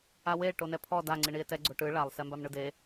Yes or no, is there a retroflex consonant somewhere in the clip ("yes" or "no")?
yes